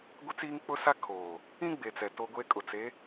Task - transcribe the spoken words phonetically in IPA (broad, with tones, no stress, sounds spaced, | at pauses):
ɡʷ ɪ˦ t͡s iː˦ ŋ k͡p ʊ˦ s a˦ kʰ oː˨ | ĩ˦ ɡ͡b e˨ t͡s ɛ˨ t o˦ ɡʷ e˦ kʼ ʊ˨ t͡s e˨˦